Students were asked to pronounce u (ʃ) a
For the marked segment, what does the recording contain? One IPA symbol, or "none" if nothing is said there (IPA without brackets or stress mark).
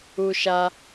ʃ